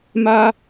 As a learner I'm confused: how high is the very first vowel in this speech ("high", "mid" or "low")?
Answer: low